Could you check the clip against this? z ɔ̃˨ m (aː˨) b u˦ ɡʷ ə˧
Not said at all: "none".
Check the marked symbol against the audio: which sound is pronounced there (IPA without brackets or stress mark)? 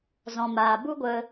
aː˨